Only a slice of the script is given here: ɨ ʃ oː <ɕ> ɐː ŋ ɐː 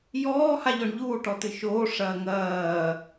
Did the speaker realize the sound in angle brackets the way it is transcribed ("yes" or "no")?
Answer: no